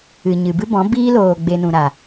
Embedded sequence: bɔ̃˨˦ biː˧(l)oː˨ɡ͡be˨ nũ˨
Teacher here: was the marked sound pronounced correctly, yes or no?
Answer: yes